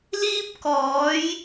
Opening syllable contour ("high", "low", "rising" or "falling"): high